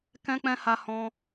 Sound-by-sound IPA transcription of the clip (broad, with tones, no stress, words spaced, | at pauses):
kɛ̃˧k͡pɛ̃˧ ha˧hɔ̃˧